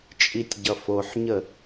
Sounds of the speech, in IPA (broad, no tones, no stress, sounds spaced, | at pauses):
t͡ʃʼ i tʲ ɟ ʌ f o ħ ɲ ə